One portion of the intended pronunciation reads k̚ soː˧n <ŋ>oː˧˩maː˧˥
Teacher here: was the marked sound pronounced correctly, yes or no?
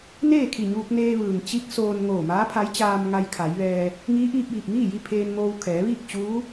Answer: yes